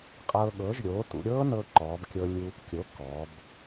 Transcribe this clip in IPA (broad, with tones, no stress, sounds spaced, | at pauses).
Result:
qʼ ɤː˧ ɠ ɤː˩˥ ʒ ɾʲ oː˩˥ t ṵ˧ ɾʲ ɤː˦˥ n ɤ˧ ǃ ɔː˩˧ b kʲ ɤ˧ lʲ u˧ | kʲ o˩˥ k ɔ˩˧ b